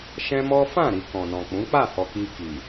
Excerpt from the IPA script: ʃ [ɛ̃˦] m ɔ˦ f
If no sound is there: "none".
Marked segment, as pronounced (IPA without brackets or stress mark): ɛ̃˦